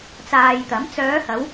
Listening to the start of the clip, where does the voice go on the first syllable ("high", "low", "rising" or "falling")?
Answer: low